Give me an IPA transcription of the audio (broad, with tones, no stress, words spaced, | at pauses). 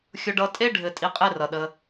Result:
xʲʊ˧ɖʌ˧ tʼe˦ɖʱɘ˨ tʼi˧qʼe˦ rʌ˨ɗə˧